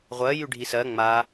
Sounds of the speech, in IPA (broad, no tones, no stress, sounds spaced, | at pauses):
ʁʷ ɜ j y ɖʱ i s ɜ ŋ͡m a